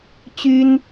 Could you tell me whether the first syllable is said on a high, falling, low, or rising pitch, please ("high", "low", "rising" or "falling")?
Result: high